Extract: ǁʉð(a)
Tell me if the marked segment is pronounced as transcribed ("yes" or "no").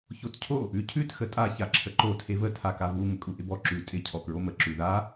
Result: yes